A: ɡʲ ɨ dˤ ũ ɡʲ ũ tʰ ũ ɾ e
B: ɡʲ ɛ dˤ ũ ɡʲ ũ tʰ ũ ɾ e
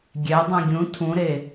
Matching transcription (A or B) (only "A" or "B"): B